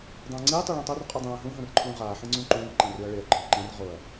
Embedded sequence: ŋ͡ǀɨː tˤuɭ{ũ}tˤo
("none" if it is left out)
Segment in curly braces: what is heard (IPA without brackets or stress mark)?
ũ